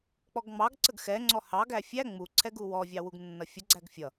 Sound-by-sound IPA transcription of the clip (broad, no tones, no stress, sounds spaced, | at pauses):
k͡p ɔ ɡ ŋ͡m ɑ ɡ ǀ ə ɡ x ɛ ŋ͡ǀ ɔ h ɑ ɡ æ fʲ æ ŋ͡m u ǀʰ ɛ ɡ u w ɔ vʲ ɑ w u ɡ nː ʌ fʲ ə ɡ͡ǀ æ ɡ fʲ ʌ